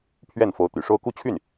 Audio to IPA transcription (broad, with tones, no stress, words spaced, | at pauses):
pʰɥɛ˥˩n fo˧˥ʊ̯t̪y̰˨˩ʂo˥ʊ̯ ku˥t͡ɕʰy˥˩n